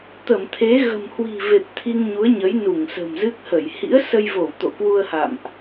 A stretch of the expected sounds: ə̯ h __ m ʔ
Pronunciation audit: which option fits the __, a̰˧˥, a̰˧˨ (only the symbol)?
a̰˧˨